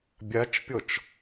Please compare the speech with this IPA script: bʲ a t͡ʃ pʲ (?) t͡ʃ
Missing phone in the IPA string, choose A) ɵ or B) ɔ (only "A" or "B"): B